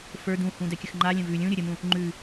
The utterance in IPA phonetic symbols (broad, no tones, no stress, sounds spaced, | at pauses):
f ə˞ d ũ h ũ d ɛ kʲ ə x ŋ͡ǃ a lʲ ə̃ v ʉ lʲ ũ ɾʲ ə ɾʲ ə m ũ | ŋ͡ǃ ʉ